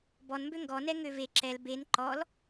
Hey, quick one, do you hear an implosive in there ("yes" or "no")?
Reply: no